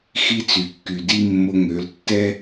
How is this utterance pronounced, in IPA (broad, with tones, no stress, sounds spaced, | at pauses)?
x i˦ t͡s y˨ kː y˨ d i˦ mː o˧ ŋ ø˨˦ l tː ɛ˦